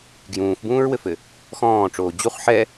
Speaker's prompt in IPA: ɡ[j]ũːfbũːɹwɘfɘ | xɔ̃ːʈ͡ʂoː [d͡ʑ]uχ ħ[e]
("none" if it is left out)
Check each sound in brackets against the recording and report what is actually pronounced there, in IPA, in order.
j, d͡ʑ, ɛ

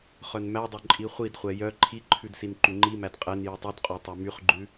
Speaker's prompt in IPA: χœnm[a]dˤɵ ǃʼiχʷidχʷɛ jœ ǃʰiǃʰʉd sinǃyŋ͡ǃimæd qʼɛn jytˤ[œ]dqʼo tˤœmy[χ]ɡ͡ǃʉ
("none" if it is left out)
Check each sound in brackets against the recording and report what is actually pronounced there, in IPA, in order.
æ, ɵ, χ

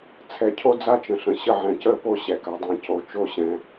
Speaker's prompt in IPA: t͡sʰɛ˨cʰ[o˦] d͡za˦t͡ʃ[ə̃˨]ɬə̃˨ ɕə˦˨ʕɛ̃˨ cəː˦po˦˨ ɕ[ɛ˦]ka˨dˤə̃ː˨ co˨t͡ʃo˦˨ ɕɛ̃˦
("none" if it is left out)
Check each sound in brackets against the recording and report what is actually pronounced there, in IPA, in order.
o˦, ə̃˨, ɛ˨

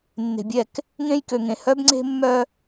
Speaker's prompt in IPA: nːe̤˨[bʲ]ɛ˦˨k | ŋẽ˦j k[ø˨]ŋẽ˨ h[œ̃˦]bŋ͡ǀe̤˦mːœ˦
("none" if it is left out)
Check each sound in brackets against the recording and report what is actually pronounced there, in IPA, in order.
bʲ, ø˨, œ˦

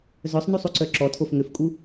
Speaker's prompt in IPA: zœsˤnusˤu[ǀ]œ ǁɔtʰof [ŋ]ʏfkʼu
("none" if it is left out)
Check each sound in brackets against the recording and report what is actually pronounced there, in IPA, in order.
ǀ, ŋ

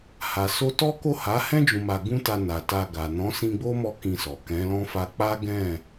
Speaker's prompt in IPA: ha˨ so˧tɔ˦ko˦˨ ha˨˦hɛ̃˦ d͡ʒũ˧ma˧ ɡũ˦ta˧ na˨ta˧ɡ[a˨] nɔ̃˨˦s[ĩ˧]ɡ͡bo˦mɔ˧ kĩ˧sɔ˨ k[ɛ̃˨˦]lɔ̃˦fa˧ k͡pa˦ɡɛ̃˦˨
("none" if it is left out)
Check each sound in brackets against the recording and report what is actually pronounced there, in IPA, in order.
a˨, ĩ˧, ɛ̃˨˦

